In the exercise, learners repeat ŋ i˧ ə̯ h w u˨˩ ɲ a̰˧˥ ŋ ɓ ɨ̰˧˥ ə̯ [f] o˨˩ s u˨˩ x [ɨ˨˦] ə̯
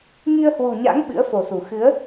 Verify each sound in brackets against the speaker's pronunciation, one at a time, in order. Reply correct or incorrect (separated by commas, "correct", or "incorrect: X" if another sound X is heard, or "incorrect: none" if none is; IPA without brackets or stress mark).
correct, correct